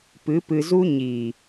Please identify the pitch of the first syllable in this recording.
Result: rising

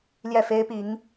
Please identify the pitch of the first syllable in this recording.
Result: falling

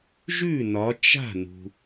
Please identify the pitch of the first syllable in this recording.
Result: falling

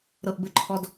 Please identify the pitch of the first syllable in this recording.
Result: low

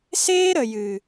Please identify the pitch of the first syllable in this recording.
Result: high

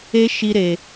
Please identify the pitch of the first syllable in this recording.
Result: high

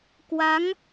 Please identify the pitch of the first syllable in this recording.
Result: rising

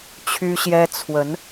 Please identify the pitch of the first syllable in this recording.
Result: high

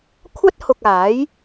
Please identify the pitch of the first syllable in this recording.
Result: high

